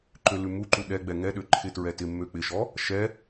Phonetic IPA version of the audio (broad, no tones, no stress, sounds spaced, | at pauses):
ǃ ø l ʉ m u ǃ u ɗ ɛ ɡ͡b ɛ ŋ ɛ ɗ ø ǃʰ ɪ t ɹ ɛ t ɪ mː ø k͡p ɪ ʃ ɔ | ʃ ɛ